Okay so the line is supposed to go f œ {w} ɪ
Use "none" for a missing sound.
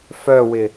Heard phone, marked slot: w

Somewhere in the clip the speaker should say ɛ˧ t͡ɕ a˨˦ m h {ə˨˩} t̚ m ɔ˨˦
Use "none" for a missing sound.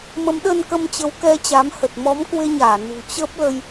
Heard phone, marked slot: ə˨˩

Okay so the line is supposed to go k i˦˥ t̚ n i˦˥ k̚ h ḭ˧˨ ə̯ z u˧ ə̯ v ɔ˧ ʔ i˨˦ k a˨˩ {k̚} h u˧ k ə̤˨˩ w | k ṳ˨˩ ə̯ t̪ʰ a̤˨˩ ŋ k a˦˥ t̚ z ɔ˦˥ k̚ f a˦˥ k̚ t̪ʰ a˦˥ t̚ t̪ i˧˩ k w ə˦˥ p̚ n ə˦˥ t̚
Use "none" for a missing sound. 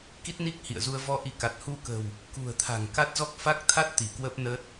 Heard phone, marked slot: t̚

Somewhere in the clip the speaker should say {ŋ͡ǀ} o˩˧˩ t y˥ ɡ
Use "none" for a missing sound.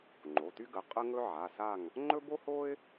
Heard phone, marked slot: ŋ͡ǃ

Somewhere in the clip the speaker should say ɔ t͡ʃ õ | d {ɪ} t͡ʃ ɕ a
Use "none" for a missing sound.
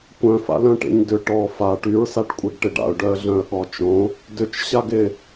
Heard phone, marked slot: ʏ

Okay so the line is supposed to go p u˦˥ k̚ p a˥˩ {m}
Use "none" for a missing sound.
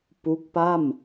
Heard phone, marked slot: m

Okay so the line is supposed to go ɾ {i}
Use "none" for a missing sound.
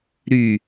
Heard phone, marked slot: y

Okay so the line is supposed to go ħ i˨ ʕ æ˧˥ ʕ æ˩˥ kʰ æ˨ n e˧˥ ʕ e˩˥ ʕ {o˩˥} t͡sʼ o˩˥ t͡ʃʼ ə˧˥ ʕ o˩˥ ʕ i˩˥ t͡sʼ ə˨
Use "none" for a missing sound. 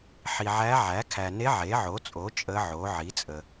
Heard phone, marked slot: o˩˥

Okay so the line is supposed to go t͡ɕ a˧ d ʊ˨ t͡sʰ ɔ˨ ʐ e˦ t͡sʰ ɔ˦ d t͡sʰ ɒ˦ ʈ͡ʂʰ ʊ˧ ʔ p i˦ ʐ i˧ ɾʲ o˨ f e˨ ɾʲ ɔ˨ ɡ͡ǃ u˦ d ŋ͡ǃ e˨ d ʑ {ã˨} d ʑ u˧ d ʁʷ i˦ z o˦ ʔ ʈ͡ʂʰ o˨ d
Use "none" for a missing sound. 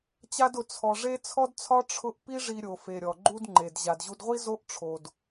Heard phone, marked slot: a˨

